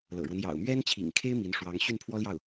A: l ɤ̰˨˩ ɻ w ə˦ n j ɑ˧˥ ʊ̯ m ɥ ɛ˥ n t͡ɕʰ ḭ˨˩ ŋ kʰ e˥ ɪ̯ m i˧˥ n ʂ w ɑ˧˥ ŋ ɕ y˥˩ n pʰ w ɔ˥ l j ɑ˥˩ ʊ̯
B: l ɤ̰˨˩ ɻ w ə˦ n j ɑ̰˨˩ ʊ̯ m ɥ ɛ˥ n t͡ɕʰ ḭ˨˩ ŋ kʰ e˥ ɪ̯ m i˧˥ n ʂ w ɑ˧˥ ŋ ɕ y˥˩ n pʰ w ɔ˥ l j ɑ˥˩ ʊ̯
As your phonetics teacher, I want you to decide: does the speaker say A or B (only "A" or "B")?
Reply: B